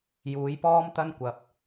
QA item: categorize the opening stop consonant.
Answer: plain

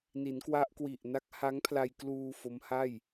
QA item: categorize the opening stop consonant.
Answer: plain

